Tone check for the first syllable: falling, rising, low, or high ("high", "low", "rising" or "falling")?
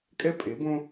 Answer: high